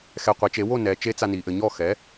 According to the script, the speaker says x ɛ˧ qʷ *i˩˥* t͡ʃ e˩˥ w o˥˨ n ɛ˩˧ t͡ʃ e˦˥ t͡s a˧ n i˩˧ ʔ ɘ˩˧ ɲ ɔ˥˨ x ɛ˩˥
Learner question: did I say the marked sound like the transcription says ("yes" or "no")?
yes